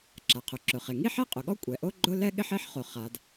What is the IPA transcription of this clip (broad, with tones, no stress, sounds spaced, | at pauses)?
ǁ a˩ qʰ ʊ˩ ǁ ʊ˩ χ e˩ ŋ i˥ ħ ɛ˥ qʼ ʊ˩ ɠ ɔ˥ kʷʼ ɛ˩ ʔ o˥ ɡ͡ǃ ʊ˥ l ɛ˥ ɠ ɪ˥ ħ e˥ ħ χ o˩ χ a˩ d